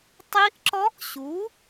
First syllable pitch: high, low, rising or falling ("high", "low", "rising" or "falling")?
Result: rising